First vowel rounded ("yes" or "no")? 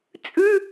yes